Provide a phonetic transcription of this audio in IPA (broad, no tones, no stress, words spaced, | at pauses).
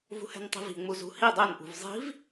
vṳhɛ̤ntˤi̤vi̤ ŋ͡muzṳhi dˤenʔṳv zˤi̤v